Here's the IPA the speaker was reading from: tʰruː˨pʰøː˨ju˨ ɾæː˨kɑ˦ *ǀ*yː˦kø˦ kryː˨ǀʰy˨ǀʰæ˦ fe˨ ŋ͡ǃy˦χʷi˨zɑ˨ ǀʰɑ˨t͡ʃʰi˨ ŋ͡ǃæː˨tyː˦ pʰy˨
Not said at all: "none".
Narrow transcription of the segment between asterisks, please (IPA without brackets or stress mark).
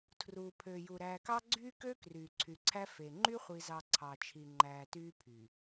ɡ͡ǀ